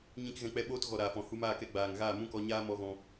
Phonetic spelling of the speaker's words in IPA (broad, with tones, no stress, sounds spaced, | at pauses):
ɲ ĩ˧ k ɣ ɛ̃˧ k͡p ɛ˧ ɓ oː˧ t ɣ ɔ˨ ɾ aː˨ f ɔ̃˨ h u˧ m aː˦˨ k ɛ˧ ɡ͡b aː˨ ŋ ɣ aː˦˨ m ũ˦ k ɔ˧ ɲ aː˦ m ɔ˧ ɣ ɔ̃˧